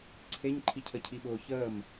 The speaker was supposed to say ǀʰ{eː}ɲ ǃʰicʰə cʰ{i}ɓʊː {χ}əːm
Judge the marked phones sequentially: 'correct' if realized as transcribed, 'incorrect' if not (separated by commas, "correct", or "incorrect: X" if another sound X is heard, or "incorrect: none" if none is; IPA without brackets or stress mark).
incorrect: e, correct, incorrect: ç